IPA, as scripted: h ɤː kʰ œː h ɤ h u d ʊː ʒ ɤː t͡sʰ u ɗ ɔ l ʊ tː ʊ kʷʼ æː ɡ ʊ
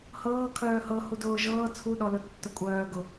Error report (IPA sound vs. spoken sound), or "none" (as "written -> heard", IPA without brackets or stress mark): æː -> œː